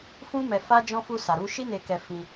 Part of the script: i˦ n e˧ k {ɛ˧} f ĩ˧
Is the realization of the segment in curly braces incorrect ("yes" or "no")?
no